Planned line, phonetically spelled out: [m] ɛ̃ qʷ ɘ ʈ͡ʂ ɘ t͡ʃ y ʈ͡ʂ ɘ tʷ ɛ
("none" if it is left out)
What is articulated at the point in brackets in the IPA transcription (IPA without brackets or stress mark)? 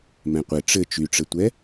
m